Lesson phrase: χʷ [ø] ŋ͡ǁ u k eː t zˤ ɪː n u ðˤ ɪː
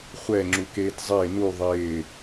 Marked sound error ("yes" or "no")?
yes